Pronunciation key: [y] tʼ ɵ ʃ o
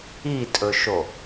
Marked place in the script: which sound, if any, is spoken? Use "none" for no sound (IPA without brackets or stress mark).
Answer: i